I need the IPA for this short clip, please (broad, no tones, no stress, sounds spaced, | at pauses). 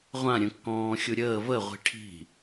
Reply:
ʁʷ ã ɾʲ ə̃ kː ɔ̃ː xʲ u ɾʲ əː v ə ʁʷ i̤ ʈʰ i̤